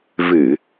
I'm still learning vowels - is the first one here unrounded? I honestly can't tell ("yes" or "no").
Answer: yes